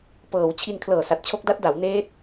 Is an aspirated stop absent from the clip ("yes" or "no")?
no